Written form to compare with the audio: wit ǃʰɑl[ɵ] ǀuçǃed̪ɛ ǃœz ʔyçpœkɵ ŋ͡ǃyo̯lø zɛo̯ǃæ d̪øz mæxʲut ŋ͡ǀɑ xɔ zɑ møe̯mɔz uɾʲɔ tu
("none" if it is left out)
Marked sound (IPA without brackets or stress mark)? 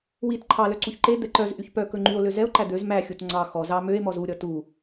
œ